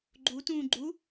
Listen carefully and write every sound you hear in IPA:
ɡ͡ǃu tũːɡ͡ǃu

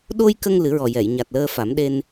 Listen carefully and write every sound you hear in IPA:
ɗo˧jkə˧ŋ lɨ˨˩˦ɹɔ˨˩jɛ˨˩˨j ɲa˨˩t̚ləː˧fa˨˩˦m ɗe˧n

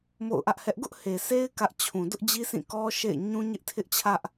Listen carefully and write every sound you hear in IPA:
mo̰˦˨ʊ̯ʔä˦ʔhɛ˦ʔ ɡʊ˦ʔ he˨sʰe˦ɪ̯ kä˦ʔ t͡ɕʰũ˨dʊ˦ʔ d͡ʑi˦sʰĩ˦˨ kɔ˦ ʃḛ˦˨ɪ̯ ɲũ˦ɲɪ˦ʔtʰɪ˦ʔt͡ɕʰä˦ʔ

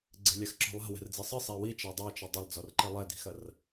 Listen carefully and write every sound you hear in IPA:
ɡ͡ǀe̤lʲaxǁɔ̤lˠa̤ wɛ̤rd͡zisˤɨ sˤewi t͡ʃadˤat͡ʃɘ dˤɐlˠd͡zɔrǃe lˠɛdi̤xɐr

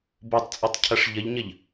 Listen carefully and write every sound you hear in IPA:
botˤ t͡sʼɔtˤcʰɐʂʎəʎɲəʎ

